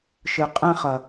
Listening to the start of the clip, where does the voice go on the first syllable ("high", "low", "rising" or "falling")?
low